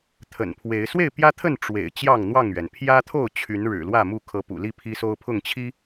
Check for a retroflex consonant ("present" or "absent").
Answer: present